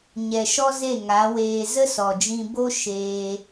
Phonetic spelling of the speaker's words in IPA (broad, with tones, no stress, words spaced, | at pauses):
ɲɛ˨ʃɔ˦ze˦˨ ŋa˨˦weː˧ zə˦sɔ˨d͡ʒĩ˧ bo˦ ʃeː˧